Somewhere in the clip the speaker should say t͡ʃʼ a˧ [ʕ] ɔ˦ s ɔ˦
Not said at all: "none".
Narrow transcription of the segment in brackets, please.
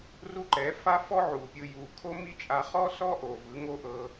χ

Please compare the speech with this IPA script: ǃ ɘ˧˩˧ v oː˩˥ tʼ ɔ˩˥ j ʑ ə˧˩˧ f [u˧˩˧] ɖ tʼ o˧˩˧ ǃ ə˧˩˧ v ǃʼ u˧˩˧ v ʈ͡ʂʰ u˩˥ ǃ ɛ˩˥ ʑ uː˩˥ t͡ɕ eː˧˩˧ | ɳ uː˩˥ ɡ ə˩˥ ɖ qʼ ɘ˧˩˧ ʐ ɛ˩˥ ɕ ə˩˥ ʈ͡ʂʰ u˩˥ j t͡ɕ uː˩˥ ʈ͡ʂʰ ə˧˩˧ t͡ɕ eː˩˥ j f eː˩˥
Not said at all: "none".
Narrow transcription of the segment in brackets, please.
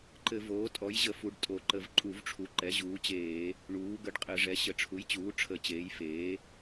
u˩˥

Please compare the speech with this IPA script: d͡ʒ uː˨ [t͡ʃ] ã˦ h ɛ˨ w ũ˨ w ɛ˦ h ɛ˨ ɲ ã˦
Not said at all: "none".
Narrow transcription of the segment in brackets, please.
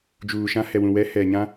ʃ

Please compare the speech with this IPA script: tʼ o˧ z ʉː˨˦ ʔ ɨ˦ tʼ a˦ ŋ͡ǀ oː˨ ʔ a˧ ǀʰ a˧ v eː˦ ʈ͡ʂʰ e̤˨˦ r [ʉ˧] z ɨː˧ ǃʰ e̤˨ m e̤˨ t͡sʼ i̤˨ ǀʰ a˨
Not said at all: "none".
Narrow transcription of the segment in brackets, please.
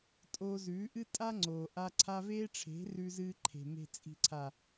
ʉ˧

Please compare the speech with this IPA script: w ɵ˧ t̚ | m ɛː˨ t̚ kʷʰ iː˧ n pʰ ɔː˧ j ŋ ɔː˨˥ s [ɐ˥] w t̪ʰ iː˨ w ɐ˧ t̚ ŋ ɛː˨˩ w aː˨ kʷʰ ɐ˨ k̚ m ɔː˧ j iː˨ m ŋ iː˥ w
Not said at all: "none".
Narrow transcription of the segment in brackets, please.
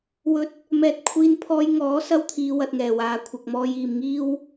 ɐ˥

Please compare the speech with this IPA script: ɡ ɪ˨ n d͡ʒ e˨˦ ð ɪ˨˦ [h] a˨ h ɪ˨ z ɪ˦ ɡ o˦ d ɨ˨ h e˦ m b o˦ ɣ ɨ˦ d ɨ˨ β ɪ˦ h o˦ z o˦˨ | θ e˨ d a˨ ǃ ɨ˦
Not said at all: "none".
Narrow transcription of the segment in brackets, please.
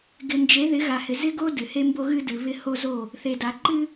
ɣ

